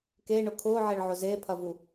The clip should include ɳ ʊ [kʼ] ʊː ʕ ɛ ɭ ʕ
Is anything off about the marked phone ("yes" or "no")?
yes